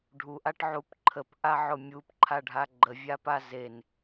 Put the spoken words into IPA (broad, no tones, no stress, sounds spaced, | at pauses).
ɖʱ u ʔ a ʈ ʕ u p ǃʰ ə p ʔ a ʕ ʊ mʲ u p ǃʰ a ɖʱ a ɡ͡ǃ ə vʲ a p a z e n